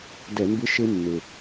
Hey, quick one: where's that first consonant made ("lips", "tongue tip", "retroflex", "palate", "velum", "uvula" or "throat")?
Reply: tongue tip